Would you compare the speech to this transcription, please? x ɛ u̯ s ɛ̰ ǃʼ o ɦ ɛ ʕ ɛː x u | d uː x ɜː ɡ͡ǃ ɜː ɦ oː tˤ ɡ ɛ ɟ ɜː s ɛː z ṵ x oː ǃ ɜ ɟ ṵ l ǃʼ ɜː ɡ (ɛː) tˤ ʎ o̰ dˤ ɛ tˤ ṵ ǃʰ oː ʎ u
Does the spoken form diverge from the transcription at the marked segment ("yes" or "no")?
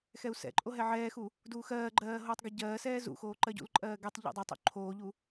yes